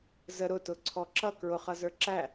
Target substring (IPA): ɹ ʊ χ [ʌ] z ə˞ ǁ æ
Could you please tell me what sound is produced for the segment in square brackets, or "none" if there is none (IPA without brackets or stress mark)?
ʌ